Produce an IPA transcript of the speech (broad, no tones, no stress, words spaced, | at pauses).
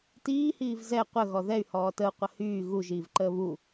tiːhiːv zɛ qʷəɣɔ ðɛy̯hɔː təu̯qʷə hyː ɣuʒiːvǃəː βu